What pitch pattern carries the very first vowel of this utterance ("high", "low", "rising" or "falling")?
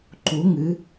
rising